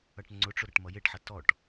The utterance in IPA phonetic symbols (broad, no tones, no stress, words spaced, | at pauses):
ʌʈŋ͡ǀʊʈ͡ʂʊ ɾʌʈmʌjeʈħʌ tɔʈ